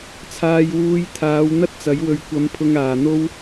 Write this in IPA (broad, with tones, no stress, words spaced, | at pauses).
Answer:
t͡sʰaː˧jwuː˧jt̪ʰaː˨˧w n̪ɐ˥t̚t͡sɐ˨˥jwɵ˧ɥ kʷɐ˧mpʰʊ˧ŋ aː˨n̪o˥w